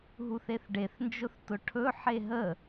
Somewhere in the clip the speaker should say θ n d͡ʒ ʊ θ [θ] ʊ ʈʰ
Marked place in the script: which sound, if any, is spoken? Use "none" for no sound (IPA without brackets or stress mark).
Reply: t